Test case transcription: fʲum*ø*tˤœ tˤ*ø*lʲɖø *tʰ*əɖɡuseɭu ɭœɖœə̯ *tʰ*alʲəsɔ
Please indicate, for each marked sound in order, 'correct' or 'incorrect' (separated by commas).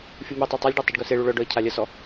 correct, incorrect, incorrect, incorrect